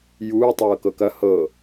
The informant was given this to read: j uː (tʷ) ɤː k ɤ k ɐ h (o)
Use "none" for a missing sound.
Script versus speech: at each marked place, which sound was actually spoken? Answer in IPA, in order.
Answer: tˤ, ɤ

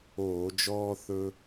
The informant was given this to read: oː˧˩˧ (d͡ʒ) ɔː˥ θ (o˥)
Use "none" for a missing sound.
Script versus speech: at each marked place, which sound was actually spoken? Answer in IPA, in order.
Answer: d͡ʒ, ɵ˥

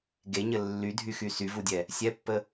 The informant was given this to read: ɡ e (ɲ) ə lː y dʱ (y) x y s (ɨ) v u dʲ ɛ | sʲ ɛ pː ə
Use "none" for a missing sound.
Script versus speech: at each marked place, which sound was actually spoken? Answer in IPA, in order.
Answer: ɲ, y, y

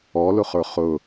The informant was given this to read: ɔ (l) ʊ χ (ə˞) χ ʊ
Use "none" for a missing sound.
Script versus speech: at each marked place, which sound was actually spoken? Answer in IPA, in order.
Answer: l, ə˞

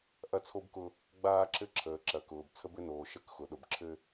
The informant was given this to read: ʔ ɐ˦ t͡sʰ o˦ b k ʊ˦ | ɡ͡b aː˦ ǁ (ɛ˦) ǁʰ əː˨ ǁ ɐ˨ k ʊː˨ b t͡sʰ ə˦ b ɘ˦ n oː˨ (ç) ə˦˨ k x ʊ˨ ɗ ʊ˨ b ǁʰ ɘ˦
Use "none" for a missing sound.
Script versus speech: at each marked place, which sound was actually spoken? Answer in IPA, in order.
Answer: ɘ˦, ʃ

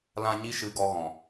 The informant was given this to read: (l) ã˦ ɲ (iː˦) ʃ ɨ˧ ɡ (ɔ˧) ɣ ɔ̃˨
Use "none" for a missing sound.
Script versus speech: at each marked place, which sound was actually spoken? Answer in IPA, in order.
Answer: l, i˦, ɔ˧

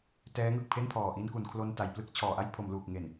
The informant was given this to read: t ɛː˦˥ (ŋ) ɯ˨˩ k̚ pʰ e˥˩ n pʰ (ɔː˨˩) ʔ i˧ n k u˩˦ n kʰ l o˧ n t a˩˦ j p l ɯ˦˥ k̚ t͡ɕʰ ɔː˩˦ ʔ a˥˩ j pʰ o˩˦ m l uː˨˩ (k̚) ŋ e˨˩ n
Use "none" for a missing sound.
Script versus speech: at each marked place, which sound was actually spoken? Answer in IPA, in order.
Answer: ŋ, ɔː˨˩, k̚

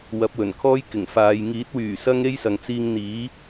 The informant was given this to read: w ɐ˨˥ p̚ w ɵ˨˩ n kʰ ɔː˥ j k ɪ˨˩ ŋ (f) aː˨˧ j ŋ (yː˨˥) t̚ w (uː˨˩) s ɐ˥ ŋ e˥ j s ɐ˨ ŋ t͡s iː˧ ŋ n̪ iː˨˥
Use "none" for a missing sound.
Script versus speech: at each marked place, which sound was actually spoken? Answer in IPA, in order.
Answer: f, iː˨˥, yː˨˩

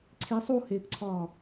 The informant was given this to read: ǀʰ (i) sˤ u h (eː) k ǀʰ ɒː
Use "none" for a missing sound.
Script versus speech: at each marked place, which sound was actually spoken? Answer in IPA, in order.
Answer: i, eː

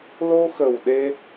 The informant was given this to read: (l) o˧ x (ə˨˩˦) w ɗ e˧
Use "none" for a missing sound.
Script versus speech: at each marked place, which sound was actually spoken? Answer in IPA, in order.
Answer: l, ə˨˩

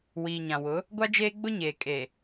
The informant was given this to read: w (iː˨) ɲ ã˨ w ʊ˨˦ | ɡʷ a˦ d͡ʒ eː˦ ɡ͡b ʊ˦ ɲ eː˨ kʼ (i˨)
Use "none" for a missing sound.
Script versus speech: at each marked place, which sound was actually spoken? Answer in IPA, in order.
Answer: iː˨, e˨

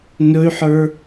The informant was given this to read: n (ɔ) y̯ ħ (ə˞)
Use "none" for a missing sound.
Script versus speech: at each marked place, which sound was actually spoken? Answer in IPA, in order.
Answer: ɵ, ə˞

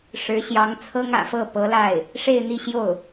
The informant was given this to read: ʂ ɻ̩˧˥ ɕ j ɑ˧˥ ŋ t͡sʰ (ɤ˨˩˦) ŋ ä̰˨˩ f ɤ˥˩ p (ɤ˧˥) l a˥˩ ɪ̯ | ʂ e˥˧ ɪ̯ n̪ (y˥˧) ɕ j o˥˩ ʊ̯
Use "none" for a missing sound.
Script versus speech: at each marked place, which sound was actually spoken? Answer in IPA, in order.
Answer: ɤ˥, ɤ˧˥, i˥˧

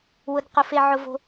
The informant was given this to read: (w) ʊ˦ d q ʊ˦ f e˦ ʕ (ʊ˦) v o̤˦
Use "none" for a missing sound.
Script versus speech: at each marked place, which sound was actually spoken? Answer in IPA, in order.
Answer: w, ʊ˦

